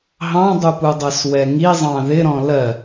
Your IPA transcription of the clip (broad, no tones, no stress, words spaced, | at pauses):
ɦɑ̃dˤupudˤɜs wɛŋizˤɑ̃ ðɪɾɔ̃ lɜ